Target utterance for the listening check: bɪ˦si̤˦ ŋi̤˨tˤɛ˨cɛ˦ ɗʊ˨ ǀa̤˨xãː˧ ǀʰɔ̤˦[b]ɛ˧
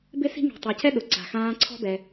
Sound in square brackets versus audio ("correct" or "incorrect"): correct